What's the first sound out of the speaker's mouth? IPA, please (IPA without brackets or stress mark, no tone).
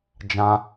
d͡ʒ